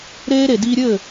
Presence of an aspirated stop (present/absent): absent